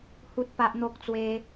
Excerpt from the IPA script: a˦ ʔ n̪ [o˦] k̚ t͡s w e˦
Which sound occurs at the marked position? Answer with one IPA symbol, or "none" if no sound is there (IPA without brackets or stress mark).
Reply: o˦